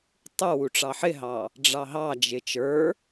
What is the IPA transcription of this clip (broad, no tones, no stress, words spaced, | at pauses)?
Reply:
tˤuwuʈ͡ʂɑ ħɪɦɑ | ɖ͡ʐɑɦɑd͡ʒɪ t͡ʃə˞